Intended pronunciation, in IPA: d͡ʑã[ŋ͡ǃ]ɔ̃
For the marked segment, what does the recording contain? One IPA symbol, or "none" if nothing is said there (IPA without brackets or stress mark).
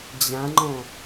ŋ͡ǃ